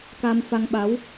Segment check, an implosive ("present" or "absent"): present